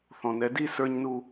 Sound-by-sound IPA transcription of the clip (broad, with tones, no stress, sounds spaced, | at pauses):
θ ɔ̃˨ n ɛ˨˦ d i˦˨ s ə˞˧ ɲ n u˧